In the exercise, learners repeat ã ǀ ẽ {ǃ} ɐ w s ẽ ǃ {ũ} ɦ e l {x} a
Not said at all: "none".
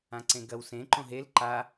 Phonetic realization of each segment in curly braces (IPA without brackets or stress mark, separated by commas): ɡ, õ, ǃ